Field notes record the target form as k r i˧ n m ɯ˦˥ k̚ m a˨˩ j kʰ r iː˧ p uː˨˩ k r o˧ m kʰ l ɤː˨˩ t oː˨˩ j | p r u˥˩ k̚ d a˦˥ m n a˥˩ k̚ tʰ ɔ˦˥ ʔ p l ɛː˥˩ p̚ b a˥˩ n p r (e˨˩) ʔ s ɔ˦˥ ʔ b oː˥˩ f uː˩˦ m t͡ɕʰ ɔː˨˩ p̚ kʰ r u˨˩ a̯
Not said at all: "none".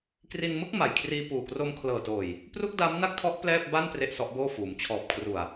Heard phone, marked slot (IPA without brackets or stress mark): e˥˩